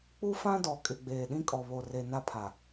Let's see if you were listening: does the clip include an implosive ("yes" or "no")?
yes